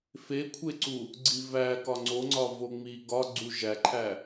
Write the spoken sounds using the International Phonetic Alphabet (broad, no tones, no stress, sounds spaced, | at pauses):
f e kʷʰ e ǀ u | ɡ͡ǀ i v æ k ɒ ŋ͡ǀ o ŋ͡ǀ ɒ v o ŋ͡m i ɡ ɒ ɡ͡ǀ u ʒ æ ǃʰ æ